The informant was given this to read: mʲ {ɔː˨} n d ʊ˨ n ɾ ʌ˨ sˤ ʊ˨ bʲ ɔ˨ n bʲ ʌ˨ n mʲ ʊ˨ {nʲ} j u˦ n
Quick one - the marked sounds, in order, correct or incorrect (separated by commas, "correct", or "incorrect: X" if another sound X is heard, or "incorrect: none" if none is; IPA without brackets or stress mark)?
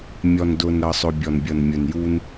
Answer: incorrect: ɔ˨, incorrect: n